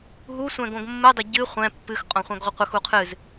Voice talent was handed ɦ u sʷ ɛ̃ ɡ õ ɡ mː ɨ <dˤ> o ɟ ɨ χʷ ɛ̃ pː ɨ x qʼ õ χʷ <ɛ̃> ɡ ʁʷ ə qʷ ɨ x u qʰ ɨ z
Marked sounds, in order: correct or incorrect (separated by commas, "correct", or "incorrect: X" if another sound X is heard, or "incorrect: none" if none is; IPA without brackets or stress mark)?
correct, correct